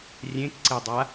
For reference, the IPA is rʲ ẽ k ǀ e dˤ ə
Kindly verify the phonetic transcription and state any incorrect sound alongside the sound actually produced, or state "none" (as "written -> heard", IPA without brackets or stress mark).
ə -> a